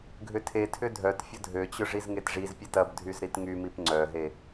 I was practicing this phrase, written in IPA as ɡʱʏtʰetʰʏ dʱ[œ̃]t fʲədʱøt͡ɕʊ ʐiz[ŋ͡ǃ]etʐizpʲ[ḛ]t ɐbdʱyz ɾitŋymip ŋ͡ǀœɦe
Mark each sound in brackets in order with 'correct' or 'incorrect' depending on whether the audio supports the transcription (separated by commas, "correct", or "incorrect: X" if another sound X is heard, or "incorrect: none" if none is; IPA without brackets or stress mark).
incorrect: œ, incorrect: ŋ, incorrect: e